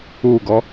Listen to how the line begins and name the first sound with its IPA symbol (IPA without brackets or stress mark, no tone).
uː